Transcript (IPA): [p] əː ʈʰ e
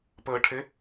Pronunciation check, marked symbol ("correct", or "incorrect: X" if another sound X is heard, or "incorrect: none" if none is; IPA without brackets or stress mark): correct